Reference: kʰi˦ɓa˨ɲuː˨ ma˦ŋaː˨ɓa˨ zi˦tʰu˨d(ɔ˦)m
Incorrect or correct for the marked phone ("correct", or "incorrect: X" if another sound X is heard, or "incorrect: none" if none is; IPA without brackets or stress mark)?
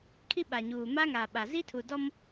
correct